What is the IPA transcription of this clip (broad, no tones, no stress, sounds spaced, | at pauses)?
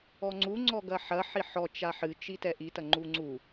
ɔ ŋ͡ǀ u ŋ͡ǀ ɔ ɡ ɐ ħ ɐ ħ i ħ ɔ t͡ʃ a ħ ɨ t͡ʃ i t ɛ ʔ i t ɐ ŋ͡ǃ u ŋ͡ǀ u